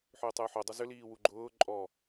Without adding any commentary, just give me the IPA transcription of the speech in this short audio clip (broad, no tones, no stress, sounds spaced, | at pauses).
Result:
ħ ʏː tˤ ʏː ħ o dˤ ʊ z ʏ l iː w u ɡ͡ǃ ʊː ǃʼ ɔ